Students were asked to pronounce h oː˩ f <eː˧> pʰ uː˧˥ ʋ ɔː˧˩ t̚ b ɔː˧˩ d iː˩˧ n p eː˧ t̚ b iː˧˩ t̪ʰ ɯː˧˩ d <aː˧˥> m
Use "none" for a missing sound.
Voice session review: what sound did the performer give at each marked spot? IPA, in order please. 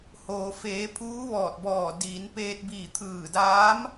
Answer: eː˩˧, aː˧˥

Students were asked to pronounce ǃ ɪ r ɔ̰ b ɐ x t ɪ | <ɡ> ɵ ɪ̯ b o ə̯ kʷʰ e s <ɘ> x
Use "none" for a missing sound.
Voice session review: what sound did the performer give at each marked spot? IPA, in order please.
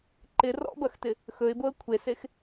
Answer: x, e

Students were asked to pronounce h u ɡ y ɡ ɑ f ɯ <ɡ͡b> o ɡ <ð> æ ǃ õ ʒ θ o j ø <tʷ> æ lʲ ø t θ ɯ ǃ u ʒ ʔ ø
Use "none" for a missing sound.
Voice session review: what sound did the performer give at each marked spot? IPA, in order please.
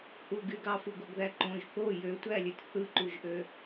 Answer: ɡ, ð, tʷ

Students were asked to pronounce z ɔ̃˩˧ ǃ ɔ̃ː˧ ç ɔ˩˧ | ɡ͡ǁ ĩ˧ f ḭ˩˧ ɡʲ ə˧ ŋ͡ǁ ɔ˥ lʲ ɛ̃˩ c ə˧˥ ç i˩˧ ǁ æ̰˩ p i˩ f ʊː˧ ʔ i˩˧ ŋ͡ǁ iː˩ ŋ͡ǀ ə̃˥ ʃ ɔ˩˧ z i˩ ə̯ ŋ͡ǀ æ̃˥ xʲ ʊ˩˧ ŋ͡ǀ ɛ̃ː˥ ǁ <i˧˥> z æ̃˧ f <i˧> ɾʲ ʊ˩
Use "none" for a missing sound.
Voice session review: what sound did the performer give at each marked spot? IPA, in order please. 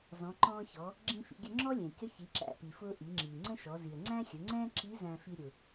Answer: i˧˥, i˧

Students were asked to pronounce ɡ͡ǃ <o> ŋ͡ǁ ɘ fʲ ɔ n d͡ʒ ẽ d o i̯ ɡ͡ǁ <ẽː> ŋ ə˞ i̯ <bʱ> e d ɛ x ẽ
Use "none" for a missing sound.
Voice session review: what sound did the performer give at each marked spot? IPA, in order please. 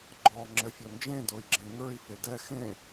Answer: ɔ, ẽ, f

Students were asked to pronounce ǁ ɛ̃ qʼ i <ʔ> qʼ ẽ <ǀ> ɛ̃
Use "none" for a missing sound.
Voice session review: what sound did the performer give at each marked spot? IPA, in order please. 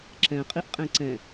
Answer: ʔ, ǀ

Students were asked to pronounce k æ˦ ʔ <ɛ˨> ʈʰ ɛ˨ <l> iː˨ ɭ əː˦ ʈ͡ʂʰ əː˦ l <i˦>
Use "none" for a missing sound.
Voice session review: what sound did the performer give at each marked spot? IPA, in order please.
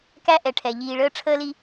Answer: ɛ˨, ʎ, i˦

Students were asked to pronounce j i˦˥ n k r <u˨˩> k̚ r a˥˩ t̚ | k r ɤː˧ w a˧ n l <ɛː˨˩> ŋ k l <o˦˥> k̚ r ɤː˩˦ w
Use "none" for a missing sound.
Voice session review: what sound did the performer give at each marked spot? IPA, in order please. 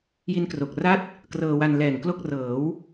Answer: o˨˩, ɛː˨˩, o˥˩

